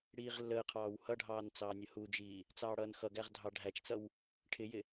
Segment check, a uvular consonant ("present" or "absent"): present